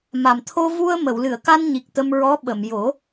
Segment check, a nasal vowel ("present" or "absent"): absent